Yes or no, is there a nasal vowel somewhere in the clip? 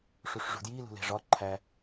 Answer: no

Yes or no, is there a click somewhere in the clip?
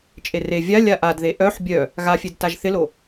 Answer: no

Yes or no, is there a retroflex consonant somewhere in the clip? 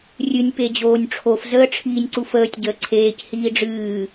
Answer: yes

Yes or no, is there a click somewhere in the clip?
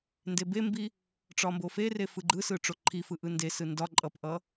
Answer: yes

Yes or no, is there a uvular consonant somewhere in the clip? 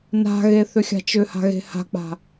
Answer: no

